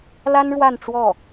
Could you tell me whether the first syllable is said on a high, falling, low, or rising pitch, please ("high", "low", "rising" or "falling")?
high